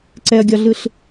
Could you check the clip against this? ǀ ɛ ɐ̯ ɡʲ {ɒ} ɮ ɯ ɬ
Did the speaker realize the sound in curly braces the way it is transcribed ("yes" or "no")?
yes